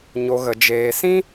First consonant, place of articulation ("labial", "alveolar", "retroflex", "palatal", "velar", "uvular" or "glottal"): palatal